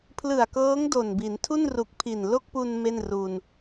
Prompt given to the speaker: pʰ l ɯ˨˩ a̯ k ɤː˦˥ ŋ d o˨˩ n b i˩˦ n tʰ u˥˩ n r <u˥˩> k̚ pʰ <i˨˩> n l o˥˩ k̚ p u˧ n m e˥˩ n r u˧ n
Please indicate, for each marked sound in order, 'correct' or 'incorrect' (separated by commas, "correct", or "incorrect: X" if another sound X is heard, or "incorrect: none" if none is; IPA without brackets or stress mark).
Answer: incorrect: u˨˩, correct